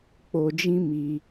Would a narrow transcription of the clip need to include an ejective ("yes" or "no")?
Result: no